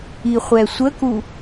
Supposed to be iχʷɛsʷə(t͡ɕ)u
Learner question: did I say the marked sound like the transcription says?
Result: no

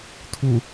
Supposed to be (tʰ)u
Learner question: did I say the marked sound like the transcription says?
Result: yes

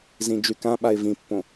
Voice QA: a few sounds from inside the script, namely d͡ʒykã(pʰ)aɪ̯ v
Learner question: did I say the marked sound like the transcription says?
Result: no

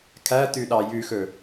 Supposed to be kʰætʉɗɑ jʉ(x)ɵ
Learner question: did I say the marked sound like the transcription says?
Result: yes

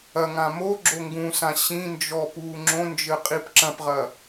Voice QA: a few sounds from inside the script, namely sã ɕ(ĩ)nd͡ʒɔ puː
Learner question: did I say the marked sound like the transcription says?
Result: yes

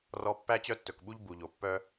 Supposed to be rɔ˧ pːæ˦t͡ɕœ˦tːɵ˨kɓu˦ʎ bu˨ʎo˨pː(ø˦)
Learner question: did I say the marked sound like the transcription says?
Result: no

